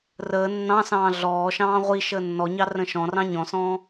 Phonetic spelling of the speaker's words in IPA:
rəː nːɑ̃sɑ̃ː ɮɔːʃɑ̃ː ʁʷi ʃəːnːɔɲɑ rə̃ʃɔ̃rɑ̃ ɲɔ̃sɔ̃ː

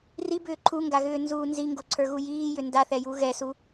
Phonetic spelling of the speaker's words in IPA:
ribʏː ǃʰuŋɡaɣʏːnzuː nziŋɡoǀʰə˞ɣu jiːjʏ ndaθɛju ɣɛsu

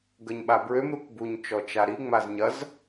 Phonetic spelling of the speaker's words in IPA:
ɡəɲɓabɹøm ɾukbuɲ t͡ʃɔt͡ʃaɾi ŋ͡mazɲɐz

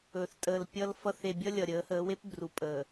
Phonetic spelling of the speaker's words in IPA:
ɵ˨θ tʼəː˨l pʲʌ˦lfʌ˦θ e˨bʲʌ˦ lʲʌ˨ɾʲəː˨˦həː˨˦we˦p bru˨pʼəː˨

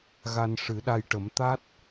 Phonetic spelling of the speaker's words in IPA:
ɣa˧nʂɨ˨˩˦ɗa˧jʈə˨˩˦m t̪a˦˥t̚

